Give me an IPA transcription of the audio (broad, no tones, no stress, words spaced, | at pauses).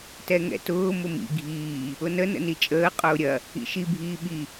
tɛŋɛ̰tʊː mʊmḭ ɡʱiː | ʊnə nə̰nit͡ʃʼəː qʼʊːɾʲɐ | ḭʃi bʱiːɓi